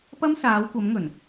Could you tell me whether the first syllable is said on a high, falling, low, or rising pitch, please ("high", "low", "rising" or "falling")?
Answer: high